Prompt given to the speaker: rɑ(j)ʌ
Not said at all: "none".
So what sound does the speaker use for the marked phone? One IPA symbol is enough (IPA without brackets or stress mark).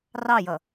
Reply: j